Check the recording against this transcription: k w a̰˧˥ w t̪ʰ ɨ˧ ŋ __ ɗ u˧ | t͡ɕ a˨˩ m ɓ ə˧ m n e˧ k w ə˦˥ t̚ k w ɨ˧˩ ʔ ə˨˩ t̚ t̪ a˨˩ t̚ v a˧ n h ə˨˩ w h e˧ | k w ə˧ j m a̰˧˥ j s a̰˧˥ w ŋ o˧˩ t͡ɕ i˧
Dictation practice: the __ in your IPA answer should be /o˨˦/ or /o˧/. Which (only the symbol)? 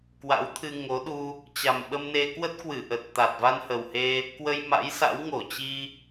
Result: o˨˦